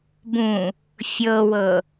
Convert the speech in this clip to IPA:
b ũ | fʲ ɤ w ɤ

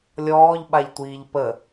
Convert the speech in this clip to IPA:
lʲ ɔː ʎ ɓ a ʎ tʷ iː ʎ p ə

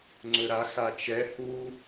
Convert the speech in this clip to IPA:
ŋ͡ǀ ɵ ɾ a x a t͡ʃ ɛ h u

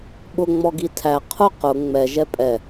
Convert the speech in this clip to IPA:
ɓ ʊ ŋ͡m ɔ ɡ i tʰ æ qʰ ʊ q ʊ ŋ͡m ɛ ʒ ɛ pʼ ɛ

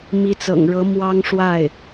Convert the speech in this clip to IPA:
m i˧˥ t͡s ɤ̰˨˩ ŋ ɻ ɤ˧˥ m w ɑ˥ ŋ ʂ w a˥˩ ɪ̯

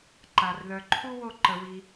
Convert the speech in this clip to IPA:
ǃ a˧ r ð œ˧ ǃʰ u˥ w o˥˧ ǃ ə˧ w i˧

